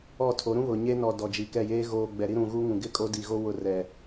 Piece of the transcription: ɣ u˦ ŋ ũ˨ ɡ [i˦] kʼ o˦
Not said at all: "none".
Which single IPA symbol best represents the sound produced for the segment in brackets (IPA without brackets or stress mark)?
ɪ˦